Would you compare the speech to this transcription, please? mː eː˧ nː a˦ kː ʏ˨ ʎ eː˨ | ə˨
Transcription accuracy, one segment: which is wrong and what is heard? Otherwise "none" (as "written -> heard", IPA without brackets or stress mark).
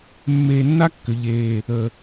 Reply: none